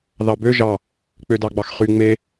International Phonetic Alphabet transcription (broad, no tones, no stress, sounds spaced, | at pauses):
ð ɑ b ø ʒ ɑ | k͡p ø d ɑ ɡ͡b ɑ x χ y ŋ͡m e